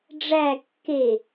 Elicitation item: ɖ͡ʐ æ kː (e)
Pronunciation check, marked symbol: correct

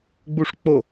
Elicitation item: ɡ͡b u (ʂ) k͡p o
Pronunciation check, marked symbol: correct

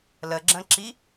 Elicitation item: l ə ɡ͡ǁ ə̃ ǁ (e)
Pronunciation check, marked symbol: incorrect: i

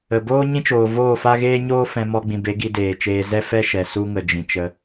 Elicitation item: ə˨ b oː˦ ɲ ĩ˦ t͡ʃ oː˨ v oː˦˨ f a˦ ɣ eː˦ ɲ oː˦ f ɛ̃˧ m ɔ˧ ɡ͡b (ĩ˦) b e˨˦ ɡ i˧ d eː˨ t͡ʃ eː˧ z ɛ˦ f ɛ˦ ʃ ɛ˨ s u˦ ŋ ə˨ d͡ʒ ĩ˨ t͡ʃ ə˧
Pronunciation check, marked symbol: incorrect: ĩ˨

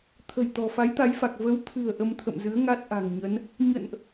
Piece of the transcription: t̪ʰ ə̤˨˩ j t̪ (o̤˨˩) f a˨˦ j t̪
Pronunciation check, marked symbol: incorrect: ɔ̤˨˩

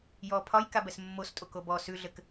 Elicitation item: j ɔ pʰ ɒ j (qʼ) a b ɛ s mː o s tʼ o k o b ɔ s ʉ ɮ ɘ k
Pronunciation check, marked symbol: incorrect: k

